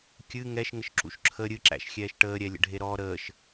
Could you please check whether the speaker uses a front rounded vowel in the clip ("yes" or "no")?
no